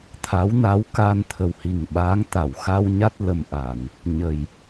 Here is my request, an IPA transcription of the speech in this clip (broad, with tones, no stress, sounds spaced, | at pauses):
t̪ʰ a˧˥ w n a˧˥ w k aː˧ n t̪ʰ ə˨˩ w h i˨˩ ŋ ɓ aː˧˥ ŋ t̪ a˨˩˨ w x a˧ w ɲ a˦˥ t̚ l ə˨˩ m ʔ a˨˩˨ n | ɲ ə˨˩ j